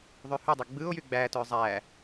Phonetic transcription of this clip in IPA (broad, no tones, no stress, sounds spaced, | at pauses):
ðˤ y h y dˤ ø ɡ͡b ɯ o̯ j y ɡ͡b æ t ø zˤ æ